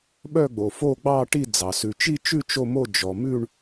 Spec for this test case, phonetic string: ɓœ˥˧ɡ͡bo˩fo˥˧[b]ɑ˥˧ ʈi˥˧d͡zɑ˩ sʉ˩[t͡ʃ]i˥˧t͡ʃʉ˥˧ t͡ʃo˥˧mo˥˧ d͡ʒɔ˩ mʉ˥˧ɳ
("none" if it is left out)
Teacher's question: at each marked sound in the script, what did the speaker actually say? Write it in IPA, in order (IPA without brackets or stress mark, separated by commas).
ɡ͡b, t͡ʃ